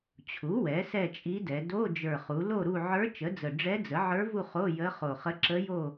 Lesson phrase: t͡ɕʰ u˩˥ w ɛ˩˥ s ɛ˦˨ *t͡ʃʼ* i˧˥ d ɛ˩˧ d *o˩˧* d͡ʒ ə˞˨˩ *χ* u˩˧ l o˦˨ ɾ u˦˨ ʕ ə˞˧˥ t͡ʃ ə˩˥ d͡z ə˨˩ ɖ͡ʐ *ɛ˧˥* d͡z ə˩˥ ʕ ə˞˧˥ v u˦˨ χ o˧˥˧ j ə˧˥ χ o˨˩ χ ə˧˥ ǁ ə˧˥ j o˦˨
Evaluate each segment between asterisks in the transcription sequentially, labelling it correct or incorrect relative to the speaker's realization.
correct, incorrect, correct, correct

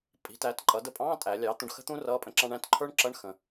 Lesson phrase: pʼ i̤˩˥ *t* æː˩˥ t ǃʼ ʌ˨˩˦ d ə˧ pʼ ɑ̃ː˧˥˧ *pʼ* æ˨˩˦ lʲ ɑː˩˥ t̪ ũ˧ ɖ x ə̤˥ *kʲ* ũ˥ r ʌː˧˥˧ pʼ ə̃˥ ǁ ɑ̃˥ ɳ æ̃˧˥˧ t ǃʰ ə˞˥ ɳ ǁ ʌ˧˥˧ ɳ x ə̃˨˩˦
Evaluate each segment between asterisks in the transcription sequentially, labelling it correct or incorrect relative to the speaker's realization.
correct, incorrect, incorrect

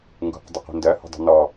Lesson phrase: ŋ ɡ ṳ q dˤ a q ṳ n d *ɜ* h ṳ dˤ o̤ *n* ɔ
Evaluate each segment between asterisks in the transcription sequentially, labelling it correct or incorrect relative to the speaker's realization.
correct, correct

